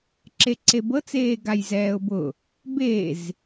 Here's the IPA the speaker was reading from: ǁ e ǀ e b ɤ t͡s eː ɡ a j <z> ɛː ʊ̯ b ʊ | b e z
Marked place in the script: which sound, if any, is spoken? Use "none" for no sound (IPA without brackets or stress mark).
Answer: z